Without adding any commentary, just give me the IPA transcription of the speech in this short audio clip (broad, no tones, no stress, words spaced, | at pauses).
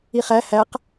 iχæ hæq